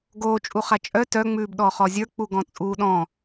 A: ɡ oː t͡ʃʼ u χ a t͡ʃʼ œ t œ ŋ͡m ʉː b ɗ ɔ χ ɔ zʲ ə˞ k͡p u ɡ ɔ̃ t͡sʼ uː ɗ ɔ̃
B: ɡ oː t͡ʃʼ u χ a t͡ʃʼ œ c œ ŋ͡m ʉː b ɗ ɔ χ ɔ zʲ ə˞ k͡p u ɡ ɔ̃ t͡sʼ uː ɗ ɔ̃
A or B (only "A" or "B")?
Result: A